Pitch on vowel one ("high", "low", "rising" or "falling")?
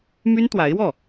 high